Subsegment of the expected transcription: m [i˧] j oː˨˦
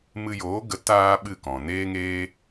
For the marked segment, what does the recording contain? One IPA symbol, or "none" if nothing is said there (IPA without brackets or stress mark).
ɨ˧